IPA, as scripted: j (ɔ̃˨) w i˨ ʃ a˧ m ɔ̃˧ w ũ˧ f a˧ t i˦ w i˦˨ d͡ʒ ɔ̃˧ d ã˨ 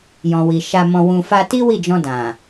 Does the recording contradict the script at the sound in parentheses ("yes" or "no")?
no